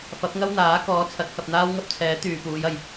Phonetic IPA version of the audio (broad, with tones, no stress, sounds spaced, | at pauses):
f ɐ˨˥ p̚ ŋ ɐ˥ w n̪ aː˨˥ k ɔː˨˥ t͡sʰ ɐ˨˥ t̚ h ɐ˨ p̚ n̪ aː˥ w ŋ ɐ˥ p̚ t͡sʰ ɛː˨˥ t̪ yː˨ p uː˨˧ j ɐ˨ j